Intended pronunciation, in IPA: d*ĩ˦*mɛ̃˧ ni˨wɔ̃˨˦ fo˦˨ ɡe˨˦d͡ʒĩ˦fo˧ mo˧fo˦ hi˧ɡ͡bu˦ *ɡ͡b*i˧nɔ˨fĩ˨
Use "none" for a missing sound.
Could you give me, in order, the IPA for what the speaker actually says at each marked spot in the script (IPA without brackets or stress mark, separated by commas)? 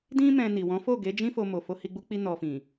ĩ˦, k͡p